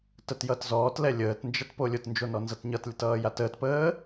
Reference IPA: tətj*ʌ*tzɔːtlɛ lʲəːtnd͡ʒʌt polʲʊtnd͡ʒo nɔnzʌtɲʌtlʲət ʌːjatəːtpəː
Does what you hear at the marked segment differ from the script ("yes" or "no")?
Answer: no